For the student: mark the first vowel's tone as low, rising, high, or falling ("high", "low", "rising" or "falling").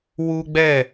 high